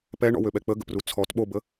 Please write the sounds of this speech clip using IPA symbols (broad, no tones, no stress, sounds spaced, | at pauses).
p ɛ ɳ ɔ̰ w ø ɓ ɛ k͡p ə ɡ ə̰ p r u t͡sʰ ɔ t ɓ o b ə